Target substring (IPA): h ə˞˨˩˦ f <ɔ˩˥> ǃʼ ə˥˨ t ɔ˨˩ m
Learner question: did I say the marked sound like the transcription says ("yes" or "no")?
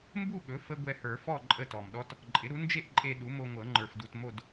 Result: no